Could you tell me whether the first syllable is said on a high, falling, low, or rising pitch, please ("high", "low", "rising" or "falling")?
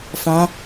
rising